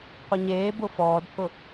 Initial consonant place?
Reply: uvular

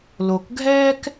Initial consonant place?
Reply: alveolar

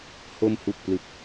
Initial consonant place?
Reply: glottal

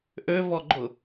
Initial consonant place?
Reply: glottal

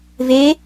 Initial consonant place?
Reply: labial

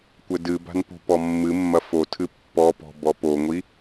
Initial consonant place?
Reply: velar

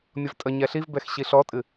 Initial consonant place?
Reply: labial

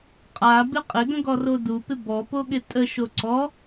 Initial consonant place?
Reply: uvular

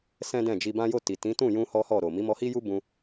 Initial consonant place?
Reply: alveolar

